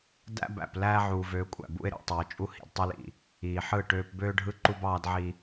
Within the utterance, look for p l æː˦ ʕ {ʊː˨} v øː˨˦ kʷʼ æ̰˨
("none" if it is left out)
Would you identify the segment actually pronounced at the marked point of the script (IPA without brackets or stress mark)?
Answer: uː˨